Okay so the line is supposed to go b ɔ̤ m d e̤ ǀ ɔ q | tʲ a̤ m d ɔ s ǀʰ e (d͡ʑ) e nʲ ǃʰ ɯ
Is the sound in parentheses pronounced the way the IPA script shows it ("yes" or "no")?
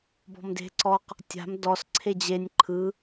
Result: yes